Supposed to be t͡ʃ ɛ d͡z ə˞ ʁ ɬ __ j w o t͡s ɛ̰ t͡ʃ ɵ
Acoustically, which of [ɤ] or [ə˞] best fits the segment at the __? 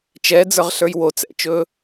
ə˞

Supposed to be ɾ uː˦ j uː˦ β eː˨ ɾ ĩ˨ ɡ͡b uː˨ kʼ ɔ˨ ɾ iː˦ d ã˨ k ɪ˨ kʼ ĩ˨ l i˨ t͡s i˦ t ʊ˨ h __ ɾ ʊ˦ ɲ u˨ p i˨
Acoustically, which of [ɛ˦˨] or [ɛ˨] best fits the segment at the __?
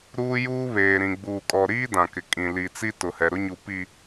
ɛ˨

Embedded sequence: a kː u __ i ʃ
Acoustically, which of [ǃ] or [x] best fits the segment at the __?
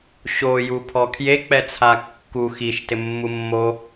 x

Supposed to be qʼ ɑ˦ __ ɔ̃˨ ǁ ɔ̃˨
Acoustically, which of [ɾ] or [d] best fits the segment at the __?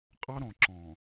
ɾ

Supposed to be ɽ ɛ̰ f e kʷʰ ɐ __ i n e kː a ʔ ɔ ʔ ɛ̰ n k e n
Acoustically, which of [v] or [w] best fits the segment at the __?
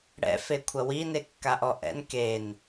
w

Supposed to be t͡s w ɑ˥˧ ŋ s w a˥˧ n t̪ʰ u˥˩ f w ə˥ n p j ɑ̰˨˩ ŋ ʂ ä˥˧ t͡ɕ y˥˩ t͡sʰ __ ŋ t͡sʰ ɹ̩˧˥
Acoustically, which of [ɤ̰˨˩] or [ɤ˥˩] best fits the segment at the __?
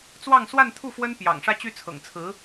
ɤ̰˨˩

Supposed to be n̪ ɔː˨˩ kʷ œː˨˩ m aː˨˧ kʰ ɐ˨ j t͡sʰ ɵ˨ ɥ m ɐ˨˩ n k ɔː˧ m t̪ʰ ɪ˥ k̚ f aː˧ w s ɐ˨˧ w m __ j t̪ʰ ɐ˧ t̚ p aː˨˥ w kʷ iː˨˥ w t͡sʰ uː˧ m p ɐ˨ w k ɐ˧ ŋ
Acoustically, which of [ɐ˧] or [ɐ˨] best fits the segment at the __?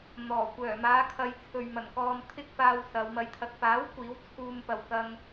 ɐ˧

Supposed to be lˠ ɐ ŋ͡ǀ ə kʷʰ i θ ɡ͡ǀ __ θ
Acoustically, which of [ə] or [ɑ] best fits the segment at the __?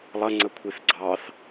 ɑ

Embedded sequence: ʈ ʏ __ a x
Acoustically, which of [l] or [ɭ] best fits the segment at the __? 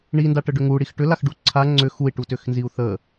l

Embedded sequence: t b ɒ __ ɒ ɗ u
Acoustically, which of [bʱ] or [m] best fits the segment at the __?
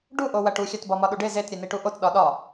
m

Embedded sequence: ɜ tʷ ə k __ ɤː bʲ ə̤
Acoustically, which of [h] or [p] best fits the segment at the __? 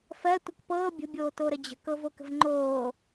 p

